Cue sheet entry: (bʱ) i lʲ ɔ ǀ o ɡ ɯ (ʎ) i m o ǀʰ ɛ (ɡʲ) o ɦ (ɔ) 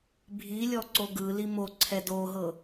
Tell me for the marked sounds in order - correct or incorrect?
correct, incorrect: l, incorrect: d, incorrect: ɤ

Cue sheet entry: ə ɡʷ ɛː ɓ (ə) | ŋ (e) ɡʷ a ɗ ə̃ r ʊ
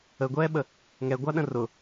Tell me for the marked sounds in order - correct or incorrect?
correct, incorrect: ɛ

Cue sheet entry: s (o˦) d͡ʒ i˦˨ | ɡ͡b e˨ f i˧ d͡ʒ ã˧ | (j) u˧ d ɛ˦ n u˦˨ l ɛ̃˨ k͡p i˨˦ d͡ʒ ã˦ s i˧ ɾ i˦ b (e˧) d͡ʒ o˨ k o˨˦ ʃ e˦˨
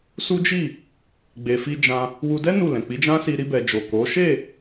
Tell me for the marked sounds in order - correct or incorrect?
incorrect: u˦, incorrect: w, incorrect: ɛ˧

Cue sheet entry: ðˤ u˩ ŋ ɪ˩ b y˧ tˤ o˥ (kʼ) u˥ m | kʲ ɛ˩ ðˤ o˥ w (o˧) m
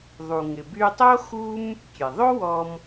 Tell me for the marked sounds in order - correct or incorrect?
incorrect: x, incorrect: ɔ˧

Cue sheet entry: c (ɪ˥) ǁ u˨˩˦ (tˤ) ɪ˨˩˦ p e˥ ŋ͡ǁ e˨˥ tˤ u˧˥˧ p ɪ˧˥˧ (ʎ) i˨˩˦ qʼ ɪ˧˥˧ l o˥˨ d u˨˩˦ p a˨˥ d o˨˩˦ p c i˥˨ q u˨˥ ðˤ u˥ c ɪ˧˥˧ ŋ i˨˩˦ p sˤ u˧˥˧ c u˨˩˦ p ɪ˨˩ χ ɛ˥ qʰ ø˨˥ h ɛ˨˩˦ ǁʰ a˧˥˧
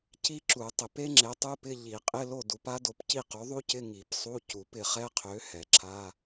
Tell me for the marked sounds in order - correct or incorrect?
incorrect: i˥, correct, correct

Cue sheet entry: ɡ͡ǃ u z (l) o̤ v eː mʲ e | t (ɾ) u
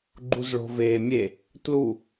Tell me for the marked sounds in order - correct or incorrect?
incorrect: ɭ, incorrect: l

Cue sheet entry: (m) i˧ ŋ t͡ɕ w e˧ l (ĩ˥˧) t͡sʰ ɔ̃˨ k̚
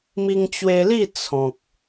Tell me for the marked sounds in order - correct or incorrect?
correct, incorrect: i˥˧

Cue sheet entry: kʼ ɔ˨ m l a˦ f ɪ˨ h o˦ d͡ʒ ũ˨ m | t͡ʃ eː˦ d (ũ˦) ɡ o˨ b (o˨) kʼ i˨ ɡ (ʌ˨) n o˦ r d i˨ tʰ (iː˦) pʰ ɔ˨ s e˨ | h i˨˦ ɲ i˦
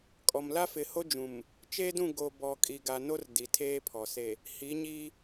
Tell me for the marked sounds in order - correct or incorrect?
incorrect: ũ˦˨, incorrect: ɔ˨, incorrect: a˨, incorrect: eː˦

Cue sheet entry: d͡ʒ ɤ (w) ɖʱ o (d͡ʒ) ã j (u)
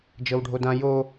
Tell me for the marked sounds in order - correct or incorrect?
correct, incorrect: d, incorrect: o

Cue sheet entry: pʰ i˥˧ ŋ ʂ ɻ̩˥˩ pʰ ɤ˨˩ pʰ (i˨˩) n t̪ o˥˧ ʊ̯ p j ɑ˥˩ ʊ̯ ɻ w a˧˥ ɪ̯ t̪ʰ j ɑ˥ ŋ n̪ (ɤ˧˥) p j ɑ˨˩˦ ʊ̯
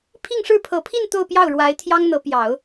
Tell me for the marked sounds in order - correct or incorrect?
incorrect: i˥˧, correct

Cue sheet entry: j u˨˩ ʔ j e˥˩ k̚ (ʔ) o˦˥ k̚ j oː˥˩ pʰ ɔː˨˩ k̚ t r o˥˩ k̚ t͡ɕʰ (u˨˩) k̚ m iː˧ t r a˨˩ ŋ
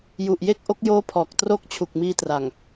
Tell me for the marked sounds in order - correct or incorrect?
correct, correct

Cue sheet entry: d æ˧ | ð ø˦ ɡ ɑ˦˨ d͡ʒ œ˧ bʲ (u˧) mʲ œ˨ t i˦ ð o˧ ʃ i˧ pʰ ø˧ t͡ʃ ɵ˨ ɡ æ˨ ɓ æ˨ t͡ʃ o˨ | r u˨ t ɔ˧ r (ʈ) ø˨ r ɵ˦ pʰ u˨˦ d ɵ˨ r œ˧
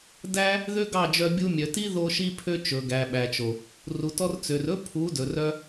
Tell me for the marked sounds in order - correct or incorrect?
correct, incorrect: t͡s

